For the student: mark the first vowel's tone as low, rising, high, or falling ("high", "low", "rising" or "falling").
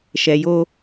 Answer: low